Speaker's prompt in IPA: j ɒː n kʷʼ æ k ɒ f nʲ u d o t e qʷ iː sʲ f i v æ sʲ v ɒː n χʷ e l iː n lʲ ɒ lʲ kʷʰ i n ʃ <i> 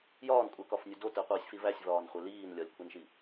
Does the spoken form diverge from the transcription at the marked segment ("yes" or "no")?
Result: no